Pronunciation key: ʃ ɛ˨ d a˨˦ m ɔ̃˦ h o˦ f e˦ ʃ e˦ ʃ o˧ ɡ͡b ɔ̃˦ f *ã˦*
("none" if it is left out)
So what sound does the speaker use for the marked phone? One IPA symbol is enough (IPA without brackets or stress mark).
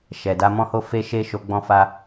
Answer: a˦